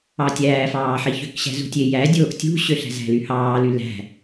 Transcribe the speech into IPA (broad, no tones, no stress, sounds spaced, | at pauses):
ɑ tʲ æː f ɑː ħ i ç ø k ɕ æ̤ z ṳ tʲ e j æ dʲ oː ʔ tʲ ṳ ɕ ø ɬ æ̤ z æ̤ l y h ɑː l y l æ̤